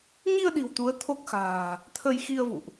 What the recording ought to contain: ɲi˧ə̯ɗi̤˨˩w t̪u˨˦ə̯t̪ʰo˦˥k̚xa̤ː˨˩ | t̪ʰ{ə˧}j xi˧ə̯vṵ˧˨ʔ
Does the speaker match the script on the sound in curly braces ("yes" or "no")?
yes